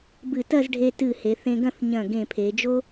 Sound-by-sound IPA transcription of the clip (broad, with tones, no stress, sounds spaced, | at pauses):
b ɨ˧˩ t ɐ˥˧ z ɖʱ e˧ t ɨ˧˩ h e˩˧ θ ẽ˧ ɡ ɐ̃˥˧ θ ɲ ɐ̃˧˩ ɡ ẽ˧˩ pʰ e˩˧ d͡ʒ o˥